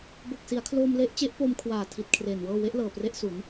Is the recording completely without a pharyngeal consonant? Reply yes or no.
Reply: yes